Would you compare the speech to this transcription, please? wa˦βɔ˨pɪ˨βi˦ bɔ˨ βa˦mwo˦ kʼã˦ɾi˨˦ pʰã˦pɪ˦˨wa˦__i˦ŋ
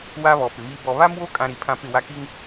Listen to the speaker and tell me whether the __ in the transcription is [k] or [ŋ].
k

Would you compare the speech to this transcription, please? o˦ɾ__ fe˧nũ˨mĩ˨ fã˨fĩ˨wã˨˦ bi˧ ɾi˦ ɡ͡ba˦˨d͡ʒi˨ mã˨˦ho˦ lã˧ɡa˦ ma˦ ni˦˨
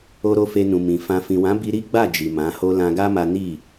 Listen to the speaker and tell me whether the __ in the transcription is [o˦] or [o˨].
o˦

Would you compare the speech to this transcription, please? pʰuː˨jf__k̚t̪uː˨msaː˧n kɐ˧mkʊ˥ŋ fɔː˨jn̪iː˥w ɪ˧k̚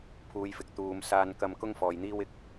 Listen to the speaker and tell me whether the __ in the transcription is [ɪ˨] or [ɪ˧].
ɪ˨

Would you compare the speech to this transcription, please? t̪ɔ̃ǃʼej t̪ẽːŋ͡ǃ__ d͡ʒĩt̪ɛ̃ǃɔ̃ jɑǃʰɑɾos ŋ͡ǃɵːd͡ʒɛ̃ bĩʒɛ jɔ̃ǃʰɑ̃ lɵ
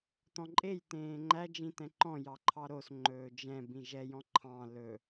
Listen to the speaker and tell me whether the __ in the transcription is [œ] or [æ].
æ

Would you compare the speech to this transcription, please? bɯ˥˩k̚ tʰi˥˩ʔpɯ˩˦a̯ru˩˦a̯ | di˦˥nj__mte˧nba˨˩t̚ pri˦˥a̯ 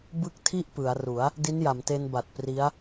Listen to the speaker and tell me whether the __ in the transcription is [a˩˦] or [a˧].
a˩˦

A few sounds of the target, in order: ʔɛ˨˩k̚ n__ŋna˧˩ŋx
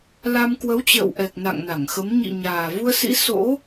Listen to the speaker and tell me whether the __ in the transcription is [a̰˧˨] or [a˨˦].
a̰˧˨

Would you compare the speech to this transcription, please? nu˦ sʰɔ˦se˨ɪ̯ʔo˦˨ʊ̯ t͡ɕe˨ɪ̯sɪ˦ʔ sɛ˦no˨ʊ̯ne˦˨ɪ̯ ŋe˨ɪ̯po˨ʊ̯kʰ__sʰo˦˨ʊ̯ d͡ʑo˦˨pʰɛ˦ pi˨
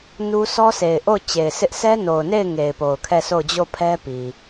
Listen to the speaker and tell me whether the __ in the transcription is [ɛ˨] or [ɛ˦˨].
ɛ˦˨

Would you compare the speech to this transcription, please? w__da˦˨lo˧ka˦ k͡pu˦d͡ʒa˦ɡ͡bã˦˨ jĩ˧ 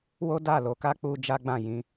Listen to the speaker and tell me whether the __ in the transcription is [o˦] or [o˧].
o˦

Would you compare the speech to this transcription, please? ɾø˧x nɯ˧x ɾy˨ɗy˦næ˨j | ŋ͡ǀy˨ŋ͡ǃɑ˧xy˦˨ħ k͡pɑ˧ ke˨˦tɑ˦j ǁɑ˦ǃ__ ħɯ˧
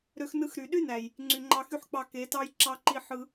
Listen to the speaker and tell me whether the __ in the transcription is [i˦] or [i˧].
i˦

